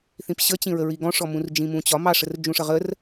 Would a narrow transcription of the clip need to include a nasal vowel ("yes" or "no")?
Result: yes